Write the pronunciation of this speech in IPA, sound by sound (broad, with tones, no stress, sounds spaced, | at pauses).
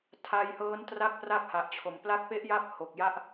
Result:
tʰ a˧ j h ɤː˦˥ n t r a˥˩ k̚ p r a˥˩ k̚ h a˨˩ ʔ t͡ɕʰ o˨˩ m p l a˦˥ k̚ p e˦˥ ʔ j a˦˥ p̚ h o˨˩ k̚ j a˥˩ ʔ